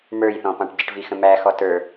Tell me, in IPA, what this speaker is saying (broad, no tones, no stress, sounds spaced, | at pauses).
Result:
m ə˞ j θ ɔ̃ p ɑ̃ ʈ ɟ ɪ ʈ v i x ə̃ m æ x ɔ t ə˞